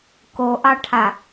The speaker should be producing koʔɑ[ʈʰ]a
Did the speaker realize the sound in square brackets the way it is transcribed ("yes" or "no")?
yes